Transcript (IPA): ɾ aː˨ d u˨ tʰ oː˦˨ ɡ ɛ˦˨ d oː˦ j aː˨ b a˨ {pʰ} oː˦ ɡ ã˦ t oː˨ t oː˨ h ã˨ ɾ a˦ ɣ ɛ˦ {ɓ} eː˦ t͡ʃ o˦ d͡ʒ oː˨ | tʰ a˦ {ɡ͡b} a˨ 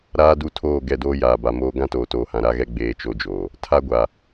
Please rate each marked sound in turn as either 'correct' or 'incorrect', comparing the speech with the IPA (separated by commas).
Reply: incorrect, incorrect, incorrect